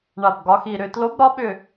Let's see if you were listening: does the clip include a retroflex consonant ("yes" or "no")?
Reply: yes